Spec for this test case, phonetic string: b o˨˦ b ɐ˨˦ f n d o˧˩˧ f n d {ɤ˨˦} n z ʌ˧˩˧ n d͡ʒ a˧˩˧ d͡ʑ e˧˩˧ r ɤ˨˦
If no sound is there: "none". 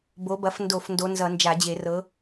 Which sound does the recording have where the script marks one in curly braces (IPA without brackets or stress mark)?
o˨˦